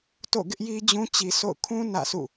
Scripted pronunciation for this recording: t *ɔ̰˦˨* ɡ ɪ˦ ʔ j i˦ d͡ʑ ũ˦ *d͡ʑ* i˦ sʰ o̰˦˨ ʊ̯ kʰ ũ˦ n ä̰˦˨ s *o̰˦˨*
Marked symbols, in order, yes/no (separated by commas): no, no, no